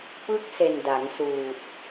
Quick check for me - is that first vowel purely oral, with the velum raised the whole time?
yes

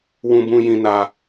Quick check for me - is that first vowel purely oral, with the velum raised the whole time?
no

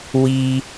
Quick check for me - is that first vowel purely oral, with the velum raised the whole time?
yes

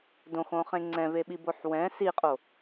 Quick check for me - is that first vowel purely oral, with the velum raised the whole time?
no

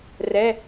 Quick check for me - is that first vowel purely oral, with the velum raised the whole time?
yes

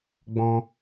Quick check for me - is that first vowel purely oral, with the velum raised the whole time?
no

